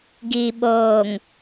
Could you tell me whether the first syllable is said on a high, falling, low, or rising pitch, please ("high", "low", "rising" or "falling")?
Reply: low